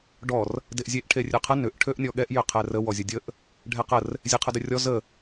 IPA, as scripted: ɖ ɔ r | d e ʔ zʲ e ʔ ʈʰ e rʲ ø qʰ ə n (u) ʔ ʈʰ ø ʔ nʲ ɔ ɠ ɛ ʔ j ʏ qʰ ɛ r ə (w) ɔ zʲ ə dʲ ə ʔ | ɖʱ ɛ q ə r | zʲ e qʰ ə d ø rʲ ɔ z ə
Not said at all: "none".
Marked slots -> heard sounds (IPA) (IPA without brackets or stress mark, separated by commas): ʏ, w